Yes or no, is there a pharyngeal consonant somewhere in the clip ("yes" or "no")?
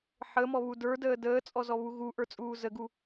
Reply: yes